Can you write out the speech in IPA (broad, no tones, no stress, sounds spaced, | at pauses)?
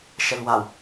ʃ ɛ l w a w